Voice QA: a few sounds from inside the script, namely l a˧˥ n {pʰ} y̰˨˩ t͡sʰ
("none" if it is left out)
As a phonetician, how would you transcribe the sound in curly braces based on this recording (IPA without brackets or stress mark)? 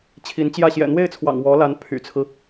pʰ